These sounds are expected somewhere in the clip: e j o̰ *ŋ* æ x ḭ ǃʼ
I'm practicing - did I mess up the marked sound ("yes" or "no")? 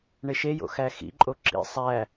yes